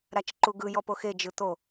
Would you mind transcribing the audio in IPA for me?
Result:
ɾ a t͡ʃ ǃ u ɡ ɯ j ɔ p o x e d͡ʒ ɯ t̪ o

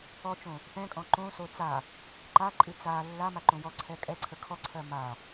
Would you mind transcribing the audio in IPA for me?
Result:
ɔ t͡ʃ õ | θ ɛ̃ kʼ ɔ̃ ǃ õ s o t͡s a | ǃ a ǃʼ ɨ t͡s a lː a m a ǃ õ j ɔ ǀʰ ɛ kʼ ɛ ǀʰ ə kʰ ɔ ǀʰ ɜ m a

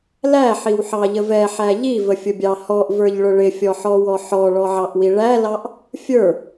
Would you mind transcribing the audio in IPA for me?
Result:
l æ ħ i w ħ ɑ ʎ ə v ɛ ħ æ ʎ i v ə fʲ ʊ bʲ ɑ h ɔ ʔ v ə˞ ʎ ɭ ʊ ɭ ɪ fʲ ɔ ħ ɔ w ɔ ħ ɔ ɭ ɔ ʕ ɑ ʔ w i ɭ æ l ɑ ʔ | fʲ ə˞

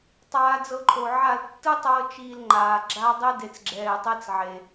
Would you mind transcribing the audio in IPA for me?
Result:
tˤ aː˧ d͡z ɤ˧ ǃʰ o˨ ʕ a˦˨ l tː ɯ˦ tˤ ɤː˧ t͡ʃ iː˧ l ŋ͡ǃ aː˨ ɡ͡ǁ a˦ dˤ e˦ d e˨ t͡s ɡ͡ǁ ɛː˨ tˤ e˧ t͡s ʕ e˨

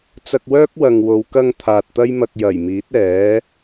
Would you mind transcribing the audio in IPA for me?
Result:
t͡s ɐ˧ k̚ w œː˥ k̚ w ɐ˨ ŋ w o˨˧ w k ɐ˧ ŋ t̪ʰ aː˨ t̚ t̪ ɐ˥ j m ɐ˧ k̚ j ɐ˨˩ j m iː˨˥ t̚ ɛː˨˥

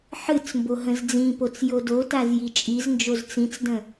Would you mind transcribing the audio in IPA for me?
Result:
ħ ɨ t͡s m b o ɦ ə̃ z d͡z ĩ p o t͡s j o d o t a z j i t͡ʃʼ i z n d͡ʒ o z t͡s ĩ t͡s d ə̃

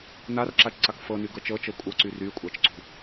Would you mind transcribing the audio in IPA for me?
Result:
n a r ǁ a t͡ʃ ǀ a k f ɤ n y ɡ ɤ t͡ʃ ɤ t͡ʃ ɤ kʷʼ ɤ ǀ y r y kʷʼ a t͡ʃ ǀ ṳ

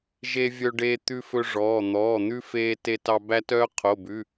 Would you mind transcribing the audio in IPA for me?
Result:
ʒ e˦ vʲ œ˦ ɖ eː˦ t̪ ʉ˦ f ɵ˦ ʐ ɔː˩˧˩ n̪ ɔː˩˧˩ n̪ ʉ˦ f eː˦ t e˦ t ɑ˦ b æ˦ t œː˦ qʰ o˩˧˩ b ʉ˩˧˩

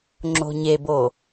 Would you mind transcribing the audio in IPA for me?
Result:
ŋ͡ǁ o̤ ɲ e b o

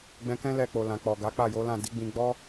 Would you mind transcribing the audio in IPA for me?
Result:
ɡ͡b ɛ̃˧ k ɛ̃˦ l ɛ˧ k͡p o˨ l ã˨ k͡p ɔ˨ ɡ a˨˦ k͡p a˦˨ j o˨˦ l ã˦˨ d i˨˦ ɡ͡b ĩ˧ ɡ͡b ɔ˦

